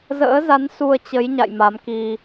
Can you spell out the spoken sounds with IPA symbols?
zə̰ː˧˥za˨˦n su˧ə̯t͡ɕə˨˦jɲa̰˧˨j ma˨˦mki˧

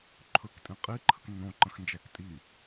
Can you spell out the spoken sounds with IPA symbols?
ǃʰɵktʼĩ qʼiǃʰək nːõǃə̃xnd͡ʒæk tʼi

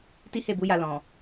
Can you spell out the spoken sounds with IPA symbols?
ti˦he˦˨bu˨˦ ja˧lɔ̃˨

